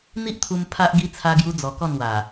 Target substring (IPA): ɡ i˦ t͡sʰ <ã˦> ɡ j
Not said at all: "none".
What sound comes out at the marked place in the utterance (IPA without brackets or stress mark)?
a˦